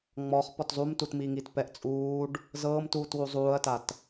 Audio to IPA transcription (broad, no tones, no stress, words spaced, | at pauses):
ŋ͡mɔχ pɔtzˤumtutmi ŋitpɛʔ t͡sʼuːɖ | zɤːmtuːt wuzˤuːɐ̯tat